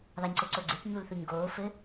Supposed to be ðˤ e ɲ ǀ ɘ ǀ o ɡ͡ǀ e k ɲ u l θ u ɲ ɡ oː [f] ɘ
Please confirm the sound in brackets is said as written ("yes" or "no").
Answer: yes